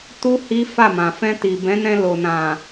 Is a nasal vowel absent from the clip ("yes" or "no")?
no